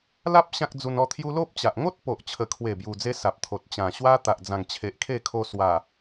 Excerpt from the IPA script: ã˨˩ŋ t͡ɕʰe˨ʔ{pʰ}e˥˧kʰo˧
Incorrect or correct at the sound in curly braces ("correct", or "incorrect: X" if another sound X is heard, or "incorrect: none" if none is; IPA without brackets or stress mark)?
incorrect: kʰ